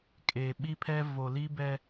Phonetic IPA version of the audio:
kʼeː˨ɓi˦pʰɛ˦ vo˨li˦bɛ˦

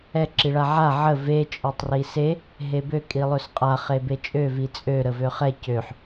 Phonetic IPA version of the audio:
ɛ ǁiɭaʕa ʕə ve t͡ʃʼøtˤrise | ɦebø kʼilˠøsqʼa χebet͡ʃʼø vit͡sʼø ɾəvøχɛ cøħ

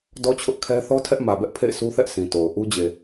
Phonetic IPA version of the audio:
dɔ˦t͡ɕʰʊ˦ʔ kʰɛ˦ θɔ˦ tʰɛ˦ʔmä˨bɛ˦ʔ pʰḛ˦˨ɪ̯sʰu˦θɛ˦ʔ sʰĩ˨to˨ʊ̯ ʔu˦d͡ʑe˨

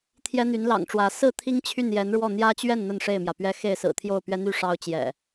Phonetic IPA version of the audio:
t̪ʰjɛ˦n̪y˨˦nlɑ̰˨˩ŋʈ͡ʂwä˨˦ sɹ̩˥˨t̪ʰi˦ŋ t͡ɕʰy˥˨njɛ˨˦nɻwɔ˥˨ n̪jä˦t͡ɕɥɛ˥˨n n̪ə˥˨nʂe˥˨ɪ̯mjä˩pɥɛ˦ xe˥˨ɪ̯sɹ̩˨˩t̪ʰjo˥˨ʊ̯ pɥɛ˦n̪y˥˨ʂɑ˦ʊ̯ t͡ɕjɛ̰˨˩

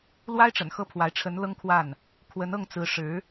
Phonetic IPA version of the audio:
lwa˥ɪ̯ʈ͡ʂə̰˨˩nxɤ˥˩pʰwa˧˥ɪ̯ ʈ͡ʂʰə˧˥n lɤ˥ŋkʰwa˥˩n | kʰwə˧˥nɤ˥˩ŋ t͡sɹ̩˧˥ ʂɻ̩˧˥

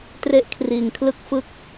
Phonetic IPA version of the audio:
tre˦˥ʔkʰriː˩˦ŋkʰlɯ˦˥k̚fɯ˥˩k̚

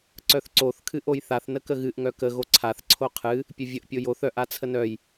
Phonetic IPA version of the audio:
ǀœθǀoθ kʰɨʔojθaθ nəkəɣɨʔ ŋœkə ɣoǀʰaθ ǀʰoqʰɨ | pʲəvʲəʔ pʲojoθ œʔ at͡sʰənœj

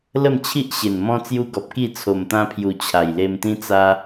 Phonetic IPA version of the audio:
lə˥˧mt͡ɕʰi˦ʔɕe˨˩n mɔ̃˧t͡sju˧ ɡɔ˨p̚ki˥˧ t͡sʰo˨˩mt̪ã˧pʰju˨˩ t͡ɕʰa˨˩jle˧mt̪ĩ˦ t͡sa˧

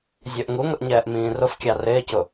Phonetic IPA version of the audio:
zʲə˞ʔŋuŋʌʔ ɲɛːʔmĩːrʊfkʲɑ rɪːcʊ

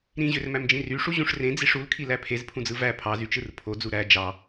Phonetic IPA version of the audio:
ɾĩʑørmæmd͡ʒĩ ryʂuʑũʂ rẽd͡ziʂ ulkʰilæ pʰezpʰũd͡zɯ væ pʰɑzyt͡ʃɯr pʰod͡zu ɾæ d͡ʒɑ

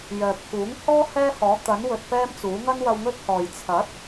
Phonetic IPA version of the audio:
jœː˨p̚kuː˨˥ŋhɔː˥ hɛː˥hɔː˨˥ t̪ɐ˨˥n wɵ˧t̚pɛː˥mt͡suː˨˥ ŋɐ˥nwɐ˧w ŋɵ˥t̚hɔː˨j t͡sʰɐ˨˥t̚

